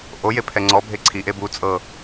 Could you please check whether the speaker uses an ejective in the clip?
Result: yes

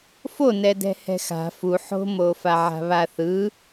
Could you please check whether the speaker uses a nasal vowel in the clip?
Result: no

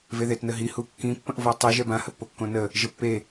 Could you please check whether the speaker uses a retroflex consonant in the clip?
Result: no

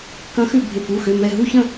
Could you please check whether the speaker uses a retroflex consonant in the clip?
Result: no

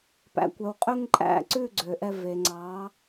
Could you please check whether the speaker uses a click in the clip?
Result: yes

